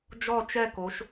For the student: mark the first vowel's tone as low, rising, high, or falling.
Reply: falling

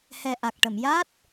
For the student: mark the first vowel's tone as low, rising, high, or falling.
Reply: low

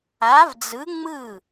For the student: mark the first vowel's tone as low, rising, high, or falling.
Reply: rising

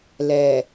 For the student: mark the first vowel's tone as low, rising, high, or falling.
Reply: low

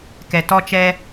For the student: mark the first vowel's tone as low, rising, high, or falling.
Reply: low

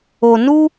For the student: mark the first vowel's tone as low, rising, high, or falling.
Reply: low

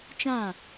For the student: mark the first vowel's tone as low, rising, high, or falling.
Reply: falling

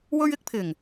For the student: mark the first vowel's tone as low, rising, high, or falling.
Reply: high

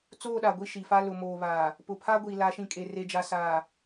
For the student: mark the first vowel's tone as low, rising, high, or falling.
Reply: falling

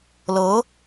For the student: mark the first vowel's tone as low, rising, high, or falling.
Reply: rising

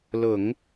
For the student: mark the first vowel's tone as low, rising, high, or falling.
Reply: low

